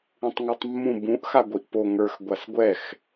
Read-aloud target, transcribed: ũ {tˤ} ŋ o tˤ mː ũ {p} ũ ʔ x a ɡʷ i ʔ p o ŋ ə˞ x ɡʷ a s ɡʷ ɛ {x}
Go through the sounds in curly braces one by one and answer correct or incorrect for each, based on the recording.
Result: correct, incorrect: b, correct

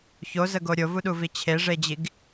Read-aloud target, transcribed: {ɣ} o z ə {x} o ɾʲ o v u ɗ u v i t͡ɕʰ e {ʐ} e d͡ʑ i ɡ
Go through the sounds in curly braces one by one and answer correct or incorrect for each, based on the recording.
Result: incorrect: ç, incorrect: ɡ, correct

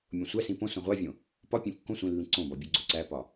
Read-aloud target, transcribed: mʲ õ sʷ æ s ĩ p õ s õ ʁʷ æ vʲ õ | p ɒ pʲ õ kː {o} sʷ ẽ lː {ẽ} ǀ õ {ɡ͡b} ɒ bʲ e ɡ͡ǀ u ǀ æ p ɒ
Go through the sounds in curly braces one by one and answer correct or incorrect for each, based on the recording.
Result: incorrect: õ, incorrect: ĩ, incorrect: b

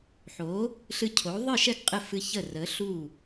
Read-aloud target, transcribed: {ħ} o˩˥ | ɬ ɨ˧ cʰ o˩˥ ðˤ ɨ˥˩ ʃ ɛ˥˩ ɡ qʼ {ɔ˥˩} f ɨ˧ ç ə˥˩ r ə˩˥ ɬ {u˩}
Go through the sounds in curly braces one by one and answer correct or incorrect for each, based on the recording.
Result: correct, incorrect: ə˥˩, incorrect: u˥˩

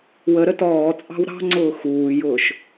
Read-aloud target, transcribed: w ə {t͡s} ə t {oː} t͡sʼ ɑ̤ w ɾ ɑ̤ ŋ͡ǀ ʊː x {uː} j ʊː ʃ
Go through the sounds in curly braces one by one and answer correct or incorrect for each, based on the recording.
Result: incorrect: ɾ, incorrect: ɔː, correct

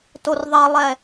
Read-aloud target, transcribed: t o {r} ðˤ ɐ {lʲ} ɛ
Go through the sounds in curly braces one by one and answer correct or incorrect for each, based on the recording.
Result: correct, incorrect: lˠ

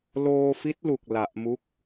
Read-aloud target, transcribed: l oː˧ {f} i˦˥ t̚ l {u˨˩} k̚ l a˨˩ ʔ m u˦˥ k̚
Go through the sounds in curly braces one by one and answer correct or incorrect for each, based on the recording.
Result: correct, correct

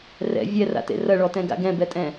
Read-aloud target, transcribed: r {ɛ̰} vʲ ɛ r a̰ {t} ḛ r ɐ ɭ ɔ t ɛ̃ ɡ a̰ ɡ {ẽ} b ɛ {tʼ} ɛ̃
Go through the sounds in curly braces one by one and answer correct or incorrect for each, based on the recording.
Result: correct, correct, incorrect: ɛ̃, correct

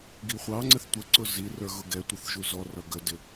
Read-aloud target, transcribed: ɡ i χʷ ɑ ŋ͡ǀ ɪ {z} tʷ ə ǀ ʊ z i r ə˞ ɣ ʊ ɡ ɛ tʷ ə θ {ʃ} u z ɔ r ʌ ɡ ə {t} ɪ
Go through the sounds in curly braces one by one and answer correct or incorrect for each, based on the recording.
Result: incorrect: θ, incorrect: ʒ, incorrect: d

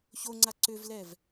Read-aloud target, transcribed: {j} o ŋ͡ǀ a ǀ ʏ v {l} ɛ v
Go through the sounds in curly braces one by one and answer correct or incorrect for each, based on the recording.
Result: incorrect: ç, correct

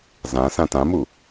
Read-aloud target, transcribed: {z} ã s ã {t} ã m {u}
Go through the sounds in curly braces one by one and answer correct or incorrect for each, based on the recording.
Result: correct, correct, correct

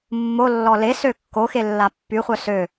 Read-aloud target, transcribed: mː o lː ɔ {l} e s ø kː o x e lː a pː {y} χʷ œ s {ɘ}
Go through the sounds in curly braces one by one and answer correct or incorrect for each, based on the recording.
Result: correct, correct, incorrect: ø

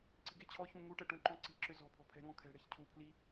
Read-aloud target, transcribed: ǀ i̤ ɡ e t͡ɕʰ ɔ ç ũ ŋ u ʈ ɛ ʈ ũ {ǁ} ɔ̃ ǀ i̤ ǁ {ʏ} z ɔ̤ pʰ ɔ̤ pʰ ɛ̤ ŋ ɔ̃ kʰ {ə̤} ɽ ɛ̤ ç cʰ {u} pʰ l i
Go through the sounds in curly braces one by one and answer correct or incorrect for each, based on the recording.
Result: incorrect: ǃ, correct, incorrect: ɛ̤, correct

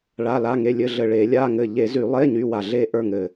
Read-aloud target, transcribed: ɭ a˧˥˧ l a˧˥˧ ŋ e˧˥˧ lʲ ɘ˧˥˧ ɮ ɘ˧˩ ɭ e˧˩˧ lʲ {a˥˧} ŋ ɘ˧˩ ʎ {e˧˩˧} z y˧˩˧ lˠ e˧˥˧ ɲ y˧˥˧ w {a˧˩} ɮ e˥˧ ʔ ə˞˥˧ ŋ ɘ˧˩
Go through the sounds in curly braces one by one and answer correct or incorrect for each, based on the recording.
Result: incorrect: a˧˥˧, correct, correct

